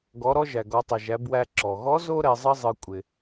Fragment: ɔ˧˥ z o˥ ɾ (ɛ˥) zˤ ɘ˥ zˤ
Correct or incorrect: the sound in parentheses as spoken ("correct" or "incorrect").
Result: incorrect